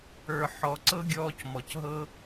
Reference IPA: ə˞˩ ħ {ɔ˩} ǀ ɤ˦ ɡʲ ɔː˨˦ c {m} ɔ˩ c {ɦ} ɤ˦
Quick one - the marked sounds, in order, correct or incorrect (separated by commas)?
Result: correct, correct, correct